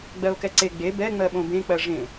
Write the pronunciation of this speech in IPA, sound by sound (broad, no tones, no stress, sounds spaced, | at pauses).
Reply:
ɡ͡b ɜ o̯ k ɛ ǀ e ɡ͡b e b ɛ ŋ͡m ɜ ɓ õ b ẽ k͡p ɜ ʐ ẽ